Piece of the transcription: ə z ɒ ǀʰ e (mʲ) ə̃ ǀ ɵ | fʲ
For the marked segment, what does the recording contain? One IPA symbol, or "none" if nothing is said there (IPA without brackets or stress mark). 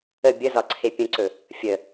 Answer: pʲ